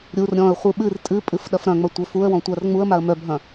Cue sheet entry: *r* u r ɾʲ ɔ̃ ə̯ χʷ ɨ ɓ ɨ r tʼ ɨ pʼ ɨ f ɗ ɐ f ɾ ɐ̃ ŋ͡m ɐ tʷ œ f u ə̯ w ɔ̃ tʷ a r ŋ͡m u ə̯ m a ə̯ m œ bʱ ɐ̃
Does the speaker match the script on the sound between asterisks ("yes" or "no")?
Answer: no